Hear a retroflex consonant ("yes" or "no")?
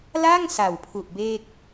no